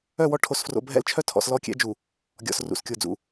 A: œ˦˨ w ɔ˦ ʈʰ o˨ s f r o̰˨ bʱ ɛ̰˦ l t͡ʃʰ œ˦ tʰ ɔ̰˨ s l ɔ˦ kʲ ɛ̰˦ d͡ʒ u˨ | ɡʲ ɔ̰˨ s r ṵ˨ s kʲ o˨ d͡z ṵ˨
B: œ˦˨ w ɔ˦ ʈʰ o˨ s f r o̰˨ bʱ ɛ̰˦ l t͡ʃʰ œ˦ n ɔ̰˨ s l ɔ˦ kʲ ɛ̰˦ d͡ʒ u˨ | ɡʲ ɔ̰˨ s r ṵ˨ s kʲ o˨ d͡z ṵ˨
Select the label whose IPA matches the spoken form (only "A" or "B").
A